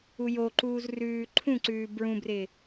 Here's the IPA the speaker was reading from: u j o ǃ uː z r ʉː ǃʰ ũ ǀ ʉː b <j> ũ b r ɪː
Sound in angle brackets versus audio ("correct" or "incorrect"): incorrect